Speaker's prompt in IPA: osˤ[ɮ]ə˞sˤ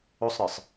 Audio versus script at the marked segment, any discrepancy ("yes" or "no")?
yes